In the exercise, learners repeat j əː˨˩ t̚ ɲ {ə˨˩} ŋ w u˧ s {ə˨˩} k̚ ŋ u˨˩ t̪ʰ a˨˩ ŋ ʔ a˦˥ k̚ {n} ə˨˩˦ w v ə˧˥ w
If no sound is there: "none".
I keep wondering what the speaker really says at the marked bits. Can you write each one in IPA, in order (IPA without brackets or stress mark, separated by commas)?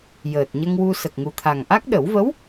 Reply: ə˧, ə˨˩, ɗ